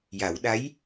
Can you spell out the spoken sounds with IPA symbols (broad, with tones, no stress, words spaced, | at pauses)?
ja˨˩˦w ɗa˧˥j